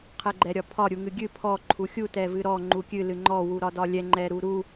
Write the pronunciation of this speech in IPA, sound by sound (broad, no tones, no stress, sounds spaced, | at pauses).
qʰ ɛ ɡ͡ǃ ɛ ɾʲ ɒ pʰ ɒ ɾʲ u ŋ ɨ ɡʲ ɨ pʰ ɔ ǃʰ u xʲ u t ɛ v ɨ ɾ ɔ ŋ͡ǃ u kʲ ɨ l ɨ ŋ͡ǃ ɔ w u ɾ ɒ d ɒ lʲ ɛ ŋ͡ǃ ɛ ɾ u ɾ u